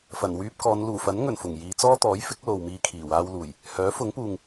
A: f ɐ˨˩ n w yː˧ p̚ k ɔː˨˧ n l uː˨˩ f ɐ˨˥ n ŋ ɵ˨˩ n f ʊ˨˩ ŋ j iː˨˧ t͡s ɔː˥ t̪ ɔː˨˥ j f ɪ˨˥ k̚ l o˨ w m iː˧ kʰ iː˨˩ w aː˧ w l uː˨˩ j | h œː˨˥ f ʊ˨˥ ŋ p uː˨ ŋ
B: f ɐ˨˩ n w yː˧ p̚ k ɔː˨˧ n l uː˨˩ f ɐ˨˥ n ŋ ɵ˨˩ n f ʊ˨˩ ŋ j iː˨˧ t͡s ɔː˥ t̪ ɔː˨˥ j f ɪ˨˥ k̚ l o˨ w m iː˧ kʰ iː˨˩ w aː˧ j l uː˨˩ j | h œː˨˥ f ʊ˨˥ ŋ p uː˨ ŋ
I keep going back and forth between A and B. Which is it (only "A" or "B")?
A